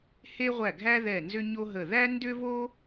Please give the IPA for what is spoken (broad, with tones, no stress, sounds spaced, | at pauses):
h e˥ ʁʷ æ˦˨ ɡʱ æ˥ ð ɛ˦˨ n z ʏ˥ ɲ o˥ ɦ ə˦˨ ð æ˥ n d ʏ˥ v o˥